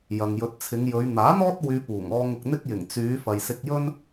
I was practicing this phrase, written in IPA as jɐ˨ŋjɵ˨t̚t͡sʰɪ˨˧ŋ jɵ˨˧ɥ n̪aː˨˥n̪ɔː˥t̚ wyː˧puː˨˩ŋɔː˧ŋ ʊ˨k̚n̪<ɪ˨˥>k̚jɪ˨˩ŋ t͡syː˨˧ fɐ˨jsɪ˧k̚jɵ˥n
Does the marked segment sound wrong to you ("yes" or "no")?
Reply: yes